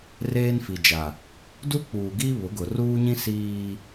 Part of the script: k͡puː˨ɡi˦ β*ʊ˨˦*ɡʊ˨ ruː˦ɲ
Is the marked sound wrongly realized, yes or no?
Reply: no